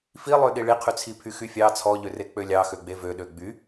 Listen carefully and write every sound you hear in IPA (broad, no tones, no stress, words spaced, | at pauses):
filˠøɗi ɭiqʰyt͡sʰi pʰyxyfʲɑ t͡sʰɔʎøre k͡pølʲɑxø ɡ͡bevøɗø ɡ͡by